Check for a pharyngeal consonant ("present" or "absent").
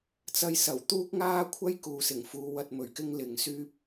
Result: absent